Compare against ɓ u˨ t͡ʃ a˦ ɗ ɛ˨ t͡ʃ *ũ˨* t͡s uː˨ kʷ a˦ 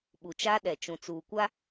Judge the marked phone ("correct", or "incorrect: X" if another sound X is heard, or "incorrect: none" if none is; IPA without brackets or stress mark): correct